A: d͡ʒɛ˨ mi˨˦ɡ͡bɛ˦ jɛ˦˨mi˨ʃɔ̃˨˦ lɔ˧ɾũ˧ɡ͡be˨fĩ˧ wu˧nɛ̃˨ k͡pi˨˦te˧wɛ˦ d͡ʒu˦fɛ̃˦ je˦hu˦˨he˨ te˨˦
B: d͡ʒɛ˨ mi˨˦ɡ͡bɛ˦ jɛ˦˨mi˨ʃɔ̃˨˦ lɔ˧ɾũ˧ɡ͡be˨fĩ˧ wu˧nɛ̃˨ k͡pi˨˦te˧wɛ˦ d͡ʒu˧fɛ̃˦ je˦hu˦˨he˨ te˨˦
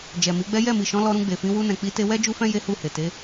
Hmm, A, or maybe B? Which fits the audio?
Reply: A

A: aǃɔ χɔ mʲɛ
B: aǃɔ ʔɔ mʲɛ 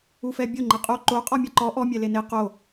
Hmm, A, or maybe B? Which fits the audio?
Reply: B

